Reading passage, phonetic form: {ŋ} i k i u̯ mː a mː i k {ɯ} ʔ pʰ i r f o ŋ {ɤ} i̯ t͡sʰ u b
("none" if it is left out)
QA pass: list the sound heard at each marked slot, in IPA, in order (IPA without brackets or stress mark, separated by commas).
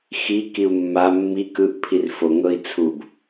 x, ɯ, ɤ